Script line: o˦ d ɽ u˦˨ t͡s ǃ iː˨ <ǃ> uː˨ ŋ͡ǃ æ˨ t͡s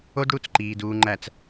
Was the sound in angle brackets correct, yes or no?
no